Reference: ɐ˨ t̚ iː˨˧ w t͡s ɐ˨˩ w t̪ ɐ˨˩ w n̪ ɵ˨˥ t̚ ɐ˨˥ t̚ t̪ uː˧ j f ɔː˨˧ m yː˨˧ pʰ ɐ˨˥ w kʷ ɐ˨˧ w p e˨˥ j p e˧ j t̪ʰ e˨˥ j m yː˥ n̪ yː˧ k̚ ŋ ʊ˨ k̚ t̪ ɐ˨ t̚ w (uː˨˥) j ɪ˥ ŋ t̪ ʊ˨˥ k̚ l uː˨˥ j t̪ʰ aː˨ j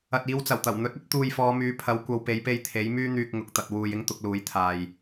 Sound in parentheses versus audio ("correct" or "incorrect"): incorrect